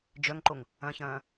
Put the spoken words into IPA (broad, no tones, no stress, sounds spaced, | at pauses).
d͡ʒ œ ŋ ǃ o ŋ | ɐ̃ ç ɐ̃ː